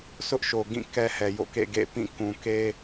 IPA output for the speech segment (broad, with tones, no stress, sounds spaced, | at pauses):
sʰ ʊ˦ ʔ ʃ o˨ ɡ ĩ˦˨ k ɛ˦ h ɛ˨ j o̰˦˨ k ḛ˦˨ ɡ ḛ˦˨ p ĩ˦˨ k ũ˨ k e˦